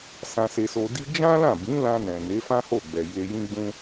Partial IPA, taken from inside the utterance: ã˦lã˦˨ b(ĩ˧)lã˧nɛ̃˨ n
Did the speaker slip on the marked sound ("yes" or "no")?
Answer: yes